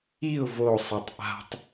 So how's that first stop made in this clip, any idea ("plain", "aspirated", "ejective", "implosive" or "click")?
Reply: plain